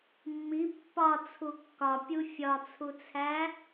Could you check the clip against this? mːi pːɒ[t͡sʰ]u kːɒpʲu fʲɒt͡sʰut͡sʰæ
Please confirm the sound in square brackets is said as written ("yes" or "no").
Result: yes